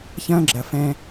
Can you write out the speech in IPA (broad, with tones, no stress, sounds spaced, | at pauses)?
ç ɐ̃ː˦ ɡ͡ǁ ɐ˨ f ɛ̃˦